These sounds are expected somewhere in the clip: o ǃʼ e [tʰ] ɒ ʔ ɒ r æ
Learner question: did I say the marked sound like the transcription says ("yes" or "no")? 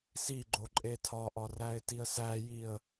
yes